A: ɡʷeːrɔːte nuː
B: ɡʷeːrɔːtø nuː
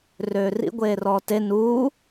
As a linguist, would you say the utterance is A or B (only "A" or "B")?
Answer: A